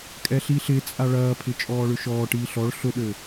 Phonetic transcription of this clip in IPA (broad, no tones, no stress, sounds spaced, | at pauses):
kʼ ɛ ɬ i ɬ ɪ t͡sʼ a ɭ ɐː pʰ ɪ t͡ʃʼ ɔː ɭ ʏ ʃ ɔː ʈ iː ɬ ɔ ɭ ɬ ʊ ɗ ø